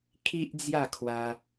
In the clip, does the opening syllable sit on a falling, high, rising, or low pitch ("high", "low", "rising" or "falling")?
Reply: high